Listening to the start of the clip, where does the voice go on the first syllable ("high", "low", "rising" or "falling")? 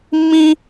high